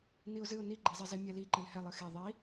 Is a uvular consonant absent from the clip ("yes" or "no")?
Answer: yes